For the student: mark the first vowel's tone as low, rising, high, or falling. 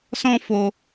high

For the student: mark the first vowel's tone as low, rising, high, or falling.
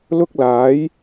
high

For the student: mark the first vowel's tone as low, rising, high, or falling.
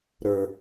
low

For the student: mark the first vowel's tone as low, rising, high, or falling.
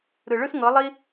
low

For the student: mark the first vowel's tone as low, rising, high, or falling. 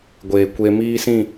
low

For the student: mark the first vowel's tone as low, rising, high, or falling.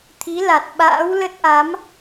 rising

